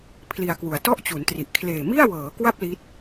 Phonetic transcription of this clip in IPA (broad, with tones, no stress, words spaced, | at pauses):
pʰli˧a̯kwu˨˩a̯ tɔ˥˩ʔt͡ɕu˩˦ntri˨˩ʔ kʰleː˨˩mi˥˩a̯wɤː˩˦kwa˥˩p̚ li˦˥t̚